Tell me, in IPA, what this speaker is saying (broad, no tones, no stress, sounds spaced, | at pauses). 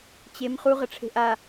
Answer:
t͡ɕ e m χ u ʁ ə ʈ͡ʂʰ e̤ ʔ a